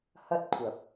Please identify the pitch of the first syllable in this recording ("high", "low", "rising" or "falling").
high